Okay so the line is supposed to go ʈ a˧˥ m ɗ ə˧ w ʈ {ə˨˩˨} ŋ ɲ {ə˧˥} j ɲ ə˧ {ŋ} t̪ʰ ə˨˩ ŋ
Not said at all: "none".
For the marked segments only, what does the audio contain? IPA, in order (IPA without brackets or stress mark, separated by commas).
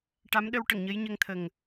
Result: ə˨˩˨, ə˧˥, ŋ